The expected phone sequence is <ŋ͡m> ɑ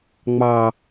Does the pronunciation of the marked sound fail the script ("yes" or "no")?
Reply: no